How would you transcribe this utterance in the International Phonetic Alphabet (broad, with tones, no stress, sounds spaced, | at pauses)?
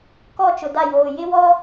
k ɔ˦˨ t͡ʃ ʊ˨ d a˦˨ j oː˨ j ɪ˦ w ɔ˦